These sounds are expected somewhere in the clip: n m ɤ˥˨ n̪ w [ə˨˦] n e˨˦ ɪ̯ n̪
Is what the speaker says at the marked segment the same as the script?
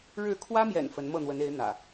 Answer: yes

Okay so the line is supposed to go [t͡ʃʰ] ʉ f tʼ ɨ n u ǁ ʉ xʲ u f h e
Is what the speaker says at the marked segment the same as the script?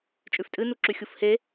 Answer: no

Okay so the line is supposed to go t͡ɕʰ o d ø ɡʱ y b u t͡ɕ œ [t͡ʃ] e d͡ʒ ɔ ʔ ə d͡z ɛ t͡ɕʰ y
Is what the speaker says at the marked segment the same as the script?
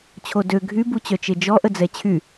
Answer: yes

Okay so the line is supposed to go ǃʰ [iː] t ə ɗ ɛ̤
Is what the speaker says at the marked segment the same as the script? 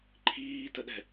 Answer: yes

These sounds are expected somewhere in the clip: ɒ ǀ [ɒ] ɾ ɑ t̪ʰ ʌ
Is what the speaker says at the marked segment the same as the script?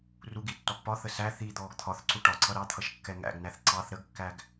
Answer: no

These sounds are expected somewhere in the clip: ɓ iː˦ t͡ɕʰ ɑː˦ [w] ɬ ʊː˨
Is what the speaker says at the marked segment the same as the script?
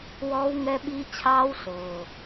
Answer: yes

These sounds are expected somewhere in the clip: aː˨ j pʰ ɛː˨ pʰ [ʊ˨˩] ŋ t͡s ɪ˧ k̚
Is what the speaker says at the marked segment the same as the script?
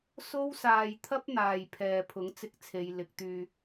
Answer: no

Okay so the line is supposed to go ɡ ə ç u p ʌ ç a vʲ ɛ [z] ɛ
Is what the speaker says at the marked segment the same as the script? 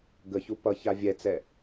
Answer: no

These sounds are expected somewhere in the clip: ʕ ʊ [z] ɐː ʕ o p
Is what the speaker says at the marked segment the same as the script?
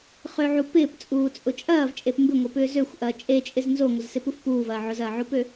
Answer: yes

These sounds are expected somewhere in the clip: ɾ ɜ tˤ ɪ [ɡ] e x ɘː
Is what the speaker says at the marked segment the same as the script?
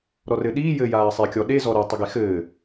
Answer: yes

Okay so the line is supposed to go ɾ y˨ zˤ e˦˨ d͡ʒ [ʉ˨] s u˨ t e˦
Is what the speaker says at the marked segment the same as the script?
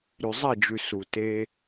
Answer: yes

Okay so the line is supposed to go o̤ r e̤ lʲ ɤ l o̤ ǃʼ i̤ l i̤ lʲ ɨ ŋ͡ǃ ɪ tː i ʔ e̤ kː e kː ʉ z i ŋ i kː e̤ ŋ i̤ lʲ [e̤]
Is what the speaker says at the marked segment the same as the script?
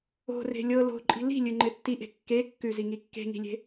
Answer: yes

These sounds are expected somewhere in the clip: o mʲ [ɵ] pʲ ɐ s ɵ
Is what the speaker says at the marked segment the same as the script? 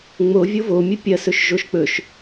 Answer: yes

